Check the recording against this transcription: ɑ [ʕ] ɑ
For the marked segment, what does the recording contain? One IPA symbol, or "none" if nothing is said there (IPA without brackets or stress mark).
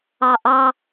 ʔ